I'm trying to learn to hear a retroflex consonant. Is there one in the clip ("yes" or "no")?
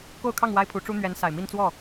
yes